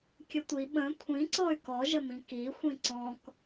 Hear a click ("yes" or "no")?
yes